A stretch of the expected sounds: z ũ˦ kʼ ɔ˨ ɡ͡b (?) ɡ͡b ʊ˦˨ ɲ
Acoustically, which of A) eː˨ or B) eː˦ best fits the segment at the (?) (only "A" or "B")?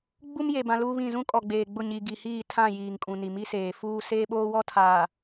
A